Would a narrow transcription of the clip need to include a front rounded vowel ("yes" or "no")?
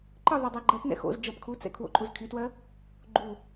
no